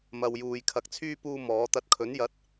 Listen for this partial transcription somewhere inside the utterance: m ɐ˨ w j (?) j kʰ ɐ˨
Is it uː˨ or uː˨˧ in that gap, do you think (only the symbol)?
uː˨